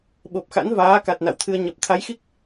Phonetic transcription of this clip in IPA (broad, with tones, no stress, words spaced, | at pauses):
ɓo˨˩p̚xa̰˧˥nvaː˨˦ka˨˩t̚ na̰˧˨wt̪ʰɨ˧ə̯ ɲə˨˩p̚ t̪ʰa˨˦jxi˦˥k̚